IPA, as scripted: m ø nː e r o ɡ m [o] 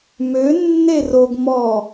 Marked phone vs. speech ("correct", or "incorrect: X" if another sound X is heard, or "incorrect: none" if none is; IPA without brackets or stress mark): incorrect: ɔ